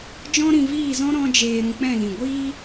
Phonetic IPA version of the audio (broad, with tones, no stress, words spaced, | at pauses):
d͡ʒɔ̃˦ɾĩ˧viː˦˨zɔ̃˦ ɾɔ̃˦d͡ʒeː˧ ɾũ˧k͡pɛ̃˦˨lĩ˨ ɡʷiː˦